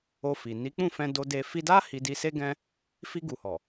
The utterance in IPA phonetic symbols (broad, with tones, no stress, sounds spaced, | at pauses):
o˧ f i˨ n i˨˦ k͡p ũ˦˨ f ɛ̃˧ d o˧ d e˧ f i˧ d a˦ h i˧ d i˧ s e˦ ɡ ɛ̃˦ | f i˧ ɡ u˨ h ɔ˨